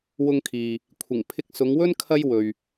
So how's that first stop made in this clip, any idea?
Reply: aspirated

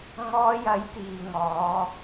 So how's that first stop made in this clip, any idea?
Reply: plain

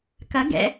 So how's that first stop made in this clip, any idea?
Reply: plain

